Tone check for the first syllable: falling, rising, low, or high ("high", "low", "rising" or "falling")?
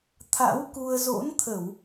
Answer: rising